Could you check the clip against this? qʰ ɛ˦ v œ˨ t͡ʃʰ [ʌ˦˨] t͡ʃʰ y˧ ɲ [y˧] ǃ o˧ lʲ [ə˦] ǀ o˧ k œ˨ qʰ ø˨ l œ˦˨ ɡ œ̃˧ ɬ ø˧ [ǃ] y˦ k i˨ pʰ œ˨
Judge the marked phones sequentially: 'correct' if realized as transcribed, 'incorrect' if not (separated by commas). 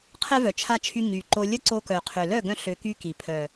incorrect, incorrect, correct, incorrect